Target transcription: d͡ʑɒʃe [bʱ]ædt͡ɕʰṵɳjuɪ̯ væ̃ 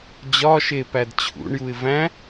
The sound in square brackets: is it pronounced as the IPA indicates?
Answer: no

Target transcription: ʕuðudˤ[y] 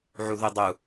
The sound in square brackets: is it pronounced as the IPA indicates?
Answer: no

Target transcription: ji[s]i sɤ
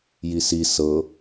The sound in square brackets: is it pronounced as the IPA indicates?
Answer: yes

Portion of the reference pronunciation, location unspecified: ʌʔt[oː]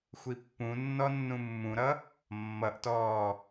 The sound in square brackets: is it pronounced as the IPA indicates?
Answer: no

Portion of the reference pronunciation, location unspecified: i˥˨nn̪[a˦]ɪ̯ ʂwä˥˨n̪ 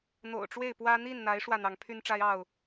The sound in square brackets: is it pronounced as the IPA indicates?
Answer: no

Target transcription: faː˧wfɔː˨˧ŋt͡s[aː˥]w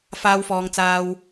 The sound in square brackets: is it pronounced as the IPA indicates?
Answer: no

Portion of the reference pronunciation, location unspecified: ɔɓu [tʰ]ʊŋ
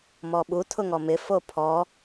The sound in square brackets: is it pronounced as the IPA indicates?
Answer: yes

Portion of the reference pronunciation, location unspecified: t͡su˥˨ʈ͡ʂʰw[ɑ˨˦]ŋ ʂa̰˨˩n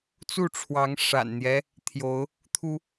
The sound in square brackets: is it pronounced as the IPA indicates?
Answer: yes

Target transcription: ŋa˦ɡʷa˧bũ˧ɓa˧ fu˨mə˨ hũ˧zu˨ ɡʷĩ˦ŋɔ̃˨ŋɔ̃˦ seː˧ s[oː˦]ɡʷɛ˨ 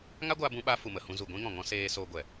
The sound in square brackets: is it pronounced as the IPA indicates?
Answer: no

